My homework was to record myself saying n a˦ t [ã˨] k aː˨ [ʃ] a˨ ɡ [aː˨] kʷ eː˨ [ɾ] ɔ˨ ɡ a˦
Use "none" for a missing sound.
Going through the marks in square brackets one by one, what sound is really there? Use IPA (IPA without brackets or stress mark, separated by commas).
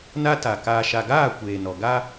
a˨, ʃ, aː˦˨, n